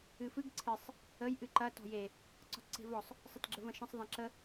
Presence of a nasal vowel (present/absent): present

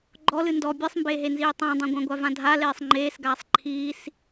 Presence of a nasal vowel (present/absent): present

